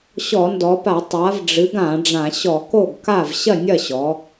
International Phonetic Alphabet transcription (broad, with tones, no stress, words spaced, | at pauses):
ɕɔ˧˩˧ndɔ˩˧pa˧˩˧ tˤa˩˧vɖ͡ʐɨ˩˧ɡ ã˧˩˧ɖ͡ʐã˧˩˧ ɕɔ˧˩˧ko˥˩ɡka˥˩v ɕɐ˥˩nʲɐ˥˩ɕɔ˩˧